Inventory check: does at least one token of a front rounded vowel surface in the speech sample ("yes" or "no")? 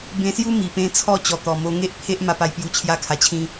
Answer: no